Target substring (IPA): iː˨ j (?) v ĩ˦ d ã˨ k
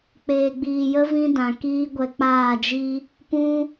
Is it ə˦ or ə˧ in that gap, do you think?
ə˦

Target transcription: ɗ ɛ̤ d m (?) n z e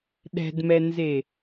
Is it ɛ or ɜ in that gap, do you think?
ɛ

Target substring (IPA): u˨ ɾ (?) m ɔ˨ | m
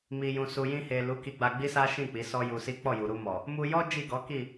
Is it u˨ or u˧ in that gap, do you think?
u˧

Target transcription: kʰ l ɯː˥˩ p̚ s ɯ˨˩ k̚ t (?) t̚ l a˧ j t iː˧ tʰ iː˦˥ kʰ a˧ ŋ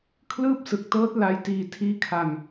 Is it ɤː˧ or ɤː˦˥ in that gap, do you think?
ɤː˦˥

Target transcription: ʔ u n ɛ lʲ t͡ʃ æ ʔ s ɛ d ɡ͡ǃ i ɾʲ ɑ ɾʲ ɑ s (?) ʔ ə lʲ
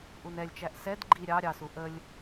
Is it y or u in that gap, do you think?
u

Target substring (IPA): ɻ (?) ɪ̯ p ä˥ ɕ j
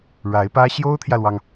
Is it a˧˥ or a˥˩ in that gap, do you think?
a˧˥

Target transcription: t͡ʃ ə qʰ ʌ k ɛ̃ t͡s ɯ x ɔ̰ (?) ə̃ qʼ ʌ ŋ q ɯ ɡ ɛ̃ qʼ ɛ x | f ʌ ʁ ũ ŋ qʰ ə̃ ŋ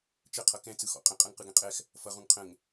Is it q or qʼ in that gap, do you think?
qʼ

